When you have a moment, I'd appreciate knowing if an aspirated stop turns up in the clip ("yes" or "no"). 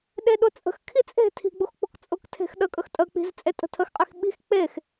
yes